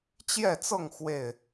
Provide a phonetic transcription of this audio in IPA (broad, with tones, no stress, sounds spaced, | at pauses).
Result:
t͡ɕ j ɛ˥˨ t͡s ɤ˥˨ ŋ x w e˥˨ ɪ̯